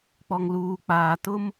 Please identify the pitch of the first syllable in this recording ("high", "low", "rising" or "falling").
low